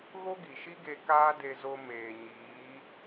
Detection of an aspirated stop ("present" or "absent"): absent